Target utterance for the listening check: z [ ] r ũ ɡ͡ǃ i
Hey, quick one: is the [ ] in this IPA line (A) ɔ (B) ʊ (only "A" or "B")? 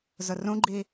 B